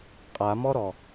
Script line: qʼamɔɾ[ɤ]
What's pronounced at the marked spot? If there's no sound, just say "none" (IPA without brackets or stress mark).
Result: ɔ